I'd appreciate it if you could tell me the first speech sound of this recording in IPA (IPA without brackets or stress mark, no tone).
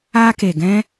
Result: a